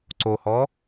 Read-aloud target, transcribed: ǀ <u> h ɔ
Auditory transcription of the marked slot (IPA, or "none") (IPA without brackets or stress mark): o